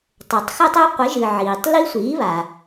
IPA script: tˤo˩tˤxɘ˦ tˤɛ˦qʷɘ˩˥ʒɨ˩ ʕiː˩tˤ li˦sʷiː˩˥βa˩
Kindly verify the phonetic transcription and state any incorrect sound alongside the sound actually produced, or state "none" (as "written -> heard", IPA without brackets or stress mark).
none